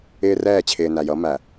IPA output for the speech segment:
ɪː˦ r ɛː˦˨ t͡ɕʰ ɪː˨ n æ˨ j ʌ˨˦ m æ˨

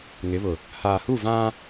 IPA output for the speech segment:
ŋ ɪ˨˦ β ʊ˨ | h aː˨ h u˦˨ v ã˦

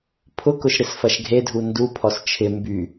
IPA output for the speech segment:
pʰ ʊ k ʊ ʃ ɾ ɪ s f ɐ ʃ ɡʱ e dʱ u n d u pʰ ɔ s t͡ʃʰ ɪ m b y

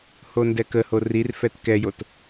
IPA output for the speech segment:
h o n d ɛ k ə h o r i r f ɛ t k ɛ j o t

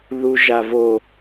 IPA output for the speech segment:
ð u ʒ a v o

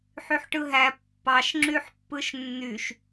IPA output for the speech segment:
ħ y ħ ʈ ɯ ɦ æ pː ɑ ʃ ŋ͡ǁ y ħ pː ɯ ʃ nː y ʃ

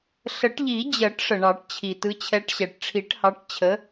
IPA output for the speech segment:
ɬ ə˨˩˦ ʈ ʎ i˨˩˦ d͡ʑ ɜ˨˩˦ ʈ ʂ ə˩ ɳ ɑ˨˩˦ ʈ t͡ɕʰ i˩ t ɯ˨˦ t͡ɕʰ ɛ˨˦ ʈ ɕ ɛ˩ ʈ ʈ͡ʂʰ i˨˩˦ ʈ h ɑ˨˦ ʈ t͡ɕʰ ə˨˦

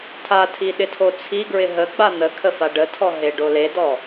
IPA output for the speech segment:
tʰ a tʰ i ɗ ɪ tʰ o t͡sʰ i ɡ ɹ ɪ ɦ ə ɡ͡b a n̪ ə kʰ ə f a ɖ ə tʰ ɔ ɦ e ɖ o l e d ɔ

